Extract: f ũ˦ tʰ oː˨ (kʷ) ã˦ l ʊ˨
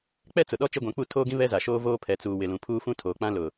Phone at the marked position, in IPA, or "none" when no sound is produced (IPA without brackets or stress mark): k͡p